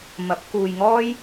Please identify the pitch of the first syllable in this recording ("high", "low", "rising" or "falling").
rising